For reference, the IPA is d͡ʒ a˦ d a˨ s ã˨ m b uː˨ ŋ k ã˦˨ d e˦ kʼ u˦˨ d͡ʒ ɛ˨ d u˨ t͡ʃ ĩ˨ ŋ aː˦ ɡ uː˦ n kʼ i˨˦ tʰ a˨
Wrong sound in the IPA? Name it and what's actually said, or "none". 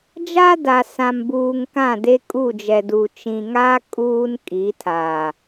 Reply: ɡ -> kʼ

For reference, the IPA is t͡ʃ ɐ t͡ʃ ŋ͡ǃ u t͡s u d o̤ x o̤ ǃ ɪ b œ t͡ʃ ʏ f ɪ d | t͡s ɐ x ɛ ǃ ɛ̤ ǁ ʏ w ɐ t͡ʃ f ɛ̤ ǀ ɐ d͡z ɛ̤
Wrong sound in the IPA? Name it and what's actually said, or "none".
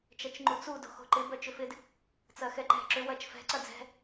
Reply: none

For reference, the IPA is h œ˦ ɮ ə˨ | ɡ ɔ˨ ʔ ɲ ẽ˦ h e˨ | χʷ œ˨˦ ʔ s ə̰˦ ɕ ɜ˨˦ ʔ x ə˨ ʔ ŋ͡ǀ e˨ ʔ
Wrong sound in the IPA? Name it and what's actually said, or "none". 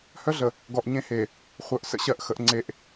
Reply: none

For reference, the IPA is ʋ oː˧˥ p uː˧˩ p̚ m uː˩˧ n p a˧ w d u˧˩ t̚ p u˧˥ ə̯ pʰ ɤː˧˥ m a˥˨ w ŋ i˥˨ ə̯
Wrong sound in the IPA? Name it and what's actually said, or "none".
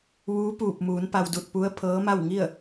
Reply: oː˧˥ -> uː˧˥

